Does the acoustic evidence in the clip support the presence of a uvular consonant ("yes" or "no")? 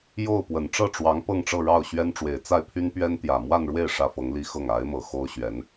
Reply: no